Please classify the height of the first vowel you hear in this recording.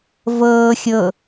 mid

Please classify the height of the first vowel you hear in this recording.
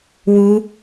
high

